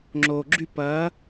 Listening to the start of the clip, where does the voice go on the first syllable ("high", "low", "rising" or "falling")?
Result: low